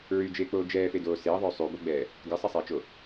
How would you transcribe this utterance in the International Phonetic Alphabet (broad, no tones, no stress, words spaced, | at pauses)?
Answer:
ɹyd͡ʒeːk͡poː d͡ʒɛːfedoː seːðˤo sˤyboɡ͡bɛː | ɡɛsˤisˤeːt͡ʃo